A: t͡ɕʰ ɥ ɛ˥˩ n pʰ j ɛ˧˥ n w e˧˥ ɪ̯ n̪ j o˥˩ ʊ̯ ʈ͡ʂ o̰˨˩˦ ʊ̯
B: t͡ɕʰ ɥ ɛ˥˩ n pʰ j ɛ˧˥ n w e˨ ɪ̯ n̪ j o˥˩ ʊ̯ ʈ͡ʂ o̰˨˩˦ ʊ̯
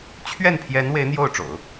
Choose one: A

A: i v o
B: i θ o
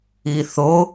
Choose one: B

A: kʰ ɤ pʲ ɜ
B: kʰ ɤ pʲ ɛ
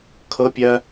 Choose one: A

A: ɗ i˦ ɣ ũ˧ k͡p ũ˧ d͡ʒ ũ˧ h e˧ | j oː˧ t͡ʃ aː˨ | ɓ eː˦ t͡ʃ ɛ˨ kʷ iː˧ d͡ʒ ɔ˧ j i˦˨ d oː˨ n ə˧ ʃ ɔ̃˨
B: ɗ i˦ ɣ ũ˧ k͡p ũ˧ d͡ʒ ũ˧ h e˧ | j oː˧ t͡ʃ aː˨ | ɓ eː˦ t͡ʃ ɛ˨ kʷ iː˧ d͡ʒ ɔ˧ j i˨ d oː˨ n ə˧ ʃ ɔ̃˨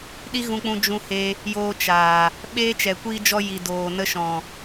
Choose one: B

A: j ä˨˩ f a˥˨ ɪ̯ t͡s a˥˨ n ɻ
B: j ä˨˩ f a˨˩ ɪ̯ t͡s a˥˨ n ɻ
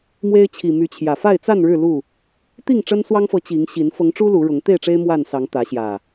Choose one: A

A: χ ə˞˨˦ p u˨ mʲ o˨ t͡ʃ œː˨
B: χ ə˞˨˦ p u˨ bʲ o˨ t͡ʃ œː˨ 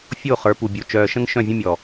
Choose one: B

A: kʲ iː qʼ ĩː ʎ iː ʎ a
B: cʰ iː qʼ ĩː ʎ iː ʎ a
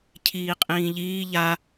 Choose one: B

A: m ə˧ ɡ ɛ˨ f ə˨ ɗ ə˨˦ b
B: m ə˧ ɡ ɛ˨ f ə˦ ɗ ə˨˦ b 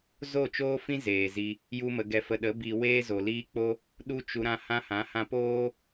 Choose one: A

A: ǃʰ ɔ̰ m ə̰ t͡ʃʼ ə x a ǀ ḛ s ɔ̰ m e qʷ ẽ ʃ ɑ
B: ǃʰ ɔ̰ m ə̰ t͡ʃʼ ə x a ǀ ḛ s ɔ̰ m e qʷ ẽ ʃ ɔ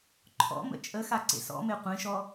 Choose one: B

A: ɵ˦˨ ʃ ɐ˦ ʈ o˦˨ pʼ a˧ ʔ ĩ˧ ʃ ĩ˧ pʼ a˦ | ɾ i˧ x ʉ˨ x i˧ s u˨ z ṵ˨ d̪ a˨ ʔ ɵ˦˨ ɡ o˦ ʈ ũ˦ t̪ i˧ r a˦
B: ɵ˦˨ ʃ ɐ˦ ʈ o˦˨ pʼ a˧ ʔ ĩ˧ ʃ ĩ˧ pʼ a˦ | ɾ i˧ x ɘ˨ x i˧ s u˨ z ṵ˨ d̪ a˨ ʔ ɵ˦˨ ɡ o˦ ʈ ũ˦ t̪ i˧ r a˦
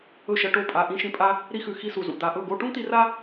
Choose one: A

